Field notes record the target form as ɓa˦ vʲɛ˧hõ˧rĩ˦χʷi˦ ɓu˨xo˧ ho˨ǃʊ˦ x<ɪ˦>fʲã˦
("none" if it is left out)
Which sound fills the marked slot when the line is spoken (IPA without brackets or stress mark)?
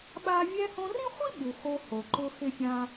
ɪ˦